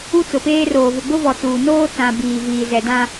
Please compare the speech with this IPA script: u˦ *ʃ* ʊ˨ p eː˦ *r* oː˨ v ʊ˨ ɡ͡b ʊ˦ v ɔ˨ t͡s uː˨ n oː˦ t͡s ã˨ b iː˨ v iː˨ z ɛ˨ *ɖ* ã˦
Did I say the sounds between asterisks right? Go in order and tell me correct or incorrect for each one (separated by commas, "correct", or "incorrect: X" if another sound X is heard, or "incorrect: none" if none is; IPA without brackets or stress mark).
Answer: incorrect: t͡s, correct, incorrect: d